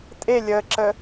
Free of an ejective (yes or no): no